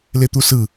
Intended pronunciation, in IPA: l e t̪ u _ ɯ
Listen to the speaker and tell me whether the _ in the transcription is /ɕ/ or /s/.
s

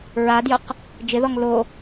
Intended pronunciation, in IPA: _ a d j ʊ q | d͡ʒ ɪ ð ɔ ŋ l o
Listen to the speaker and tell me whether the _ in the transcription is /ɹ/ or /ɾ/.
ɹ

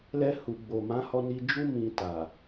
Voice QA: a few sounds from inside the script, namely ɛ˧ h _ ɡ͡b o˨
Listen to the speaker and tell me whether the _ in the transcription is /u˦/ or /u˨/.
u˨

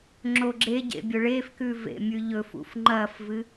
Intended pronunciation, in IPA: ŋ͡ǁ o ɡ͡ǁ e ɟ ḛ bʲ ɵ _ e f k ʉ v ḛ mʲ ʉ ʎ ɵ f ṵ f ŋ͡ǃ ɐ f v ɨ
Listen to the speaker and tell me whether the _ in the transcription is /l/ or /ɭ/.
ɭ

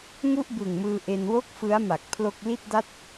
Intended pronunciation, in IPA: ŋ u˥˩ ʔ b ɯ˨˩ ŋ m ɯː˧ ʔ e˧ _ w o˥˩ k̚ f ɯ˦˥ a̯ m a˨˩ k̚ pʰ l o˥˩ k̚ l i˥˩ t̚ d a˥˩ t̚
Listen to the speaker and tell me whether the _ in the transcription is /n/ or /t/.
n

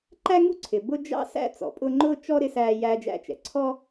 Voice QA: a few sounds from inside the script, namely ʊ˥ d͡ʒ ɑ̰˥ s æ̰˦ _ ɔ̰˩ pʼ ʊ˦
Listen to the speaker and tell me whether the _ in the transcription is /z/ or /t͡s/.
t͡s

